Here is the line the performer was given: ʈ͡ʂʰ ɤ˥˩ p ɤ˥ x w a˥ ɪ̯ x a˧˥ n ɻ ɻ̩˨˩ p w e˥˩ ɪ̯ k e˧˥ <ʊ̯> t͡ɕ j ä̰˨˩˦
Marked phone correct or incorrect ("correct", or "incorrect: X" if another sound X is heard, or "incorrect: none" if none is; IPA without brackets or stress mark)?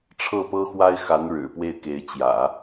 incorrect: ɪ̯